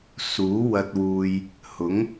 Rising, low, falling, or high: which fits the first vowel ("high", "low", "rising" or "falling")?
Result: rising